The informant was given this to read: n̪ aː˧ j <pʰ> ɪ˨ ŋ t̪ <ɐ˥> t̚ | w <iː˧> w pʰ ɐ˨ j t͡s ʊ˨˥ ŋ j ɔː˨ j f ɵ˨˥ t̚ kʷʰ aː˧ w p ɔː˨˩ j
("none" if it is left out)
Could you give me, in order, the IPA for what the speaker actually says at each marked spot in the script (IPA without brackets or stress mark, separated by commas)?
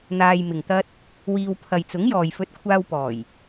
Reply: m, ɐ˥, iː˧